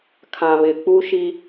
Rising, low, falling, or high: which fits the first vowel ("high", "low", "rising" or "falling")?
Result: low